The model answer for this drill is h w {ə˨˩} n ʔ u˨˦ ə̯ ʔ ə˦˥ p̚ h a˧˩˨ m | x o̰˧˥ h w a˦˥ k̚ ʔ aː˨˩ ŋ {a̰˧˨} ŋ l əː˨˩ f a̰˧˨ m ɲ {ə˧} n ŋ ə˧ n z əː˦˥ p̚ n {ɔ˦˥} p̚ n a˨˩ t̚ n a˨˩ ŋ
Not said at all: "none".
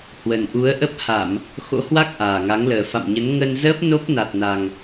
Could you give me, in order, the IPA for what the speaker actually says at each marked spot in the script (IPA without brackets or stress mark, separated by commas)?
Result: ə˨˩, a˨˦, ə˨˦, o˦˥